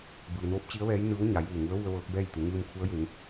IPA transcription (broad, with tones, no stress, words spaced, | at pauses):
bɯː˩noː˧˥p̚t͡ɕi˧˥ə̯ʋɛː˧˥j nɯː˧˥w ɲa˩˧juː˧˩ŋu˧˥ə̯ʋu˧ə̯ ʋɤː˧˥k̚bɛː˥˨jt̪u˩˧ ŋɯː˧mkʰu˧˥ə̯je˩˧ŋ